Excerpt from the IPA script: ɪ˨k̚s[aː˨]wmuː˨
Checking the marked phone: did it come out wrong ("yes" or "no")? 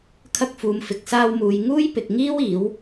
yes